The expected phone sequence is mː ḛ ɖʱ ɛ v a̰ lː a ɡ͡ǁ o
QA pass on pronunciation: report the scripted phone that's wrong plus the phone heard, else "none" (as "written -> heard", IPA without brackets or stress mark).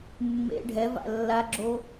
none